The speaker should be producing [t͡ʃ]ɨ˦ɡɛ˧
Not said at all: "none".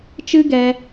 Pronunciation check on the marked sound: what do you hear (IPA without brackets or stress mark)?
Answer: t͡ʃ